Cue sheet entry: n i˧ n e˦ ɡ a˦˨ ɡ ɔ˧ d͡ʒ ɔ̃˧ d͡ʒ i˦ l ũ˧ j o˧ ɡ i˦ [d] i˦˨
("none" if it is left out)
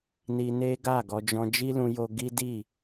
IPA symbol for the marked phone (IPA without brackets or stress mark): d